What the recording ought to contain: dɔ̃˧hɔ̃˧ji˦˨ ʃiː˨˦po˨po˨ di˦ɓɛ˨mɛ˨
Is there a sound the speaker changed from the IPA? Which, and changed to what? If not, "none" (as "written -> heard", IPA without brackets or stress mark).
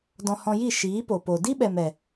none